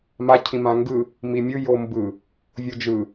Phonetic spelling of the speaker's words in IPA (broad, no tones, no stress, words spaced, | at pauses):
ma cʰĩmãŋɡɯ | mimʲɯ jombɯ | vʲod͡ʒɯ